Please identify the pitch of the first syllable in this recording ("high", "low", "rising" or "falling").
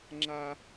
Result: high